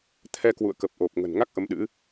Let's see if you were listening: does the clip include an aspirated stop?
yes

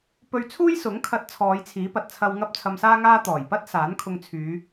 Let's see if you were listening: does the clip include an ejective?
no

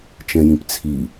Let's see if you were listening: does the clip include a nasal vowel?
yes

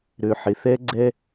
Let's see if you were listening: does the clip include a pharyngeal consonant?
yes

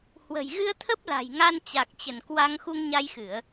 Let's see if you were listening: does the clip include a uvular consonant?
no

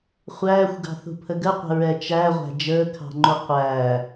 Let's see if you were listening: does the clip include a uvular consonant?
yes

